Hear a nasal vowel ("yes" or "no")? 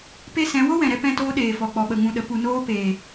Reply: yes